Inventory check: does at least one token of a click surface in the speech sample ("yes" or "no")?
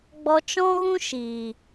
no